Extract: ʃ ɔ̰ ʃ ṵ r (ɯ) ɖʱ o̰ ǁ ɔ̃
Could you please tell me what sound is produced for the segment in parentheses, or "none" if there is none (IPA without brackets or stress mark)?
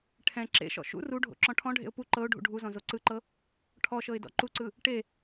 u